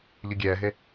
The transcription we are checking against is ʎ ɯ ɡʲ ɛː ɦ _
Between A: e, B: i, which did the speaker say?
A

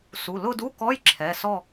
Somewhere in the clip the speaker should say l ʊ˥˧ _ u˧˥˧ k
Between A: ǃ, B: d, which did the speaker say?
B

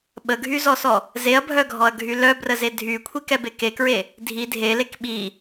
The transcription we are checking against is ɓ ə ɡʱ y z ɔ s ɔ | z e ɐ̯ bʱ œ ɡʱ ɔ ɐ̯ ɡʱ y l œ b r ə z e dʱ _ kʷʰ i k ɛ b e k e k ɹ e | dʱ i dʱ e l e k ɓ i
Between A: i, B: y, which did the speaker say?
B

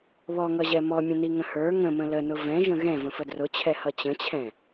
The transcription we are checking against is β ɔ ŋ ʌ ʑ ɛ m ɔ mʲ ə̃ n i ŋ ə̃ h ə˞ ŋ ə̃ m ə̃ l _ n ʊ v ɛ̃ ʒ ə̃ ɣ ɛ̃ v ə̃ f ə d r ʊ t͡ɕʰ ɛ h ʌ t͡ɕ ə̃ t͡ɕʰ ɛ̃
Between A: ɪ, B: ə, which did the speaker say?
B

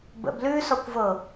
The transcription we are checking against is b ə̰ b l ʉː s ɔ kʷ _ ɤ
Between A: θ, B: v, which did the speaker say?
B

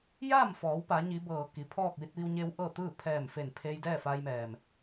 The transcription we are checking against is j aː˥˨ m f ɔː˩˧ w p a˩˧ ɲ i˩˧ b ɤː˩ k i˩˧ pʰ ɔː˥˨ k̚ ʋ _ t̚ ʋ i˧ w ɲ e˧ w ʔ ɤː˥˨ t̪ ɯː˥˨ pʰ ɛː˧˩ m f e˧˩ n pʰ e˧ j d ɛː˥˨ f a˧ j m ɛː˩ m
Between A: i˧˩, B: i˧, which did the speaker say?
B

